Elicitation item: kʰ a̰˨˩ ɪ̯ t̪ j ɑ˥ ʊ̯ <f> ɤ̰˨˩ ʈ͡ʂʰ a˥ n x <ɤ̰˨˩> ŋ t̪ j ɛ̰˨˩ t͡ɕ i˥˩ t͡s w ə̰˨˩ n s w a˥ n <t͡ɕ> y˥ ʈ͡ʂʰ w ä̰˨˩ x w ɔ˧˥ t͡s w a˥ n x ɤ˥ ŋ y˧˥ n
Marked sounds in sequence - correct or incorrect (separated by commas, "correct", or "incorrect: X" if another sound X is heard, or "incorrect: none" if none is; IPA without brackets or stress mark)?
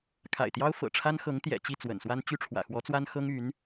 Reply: correct, incorrect: ɤ˧˥, correct